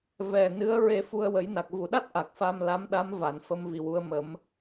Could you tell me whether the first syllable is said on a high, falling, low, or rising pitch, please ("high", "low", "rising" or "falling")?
low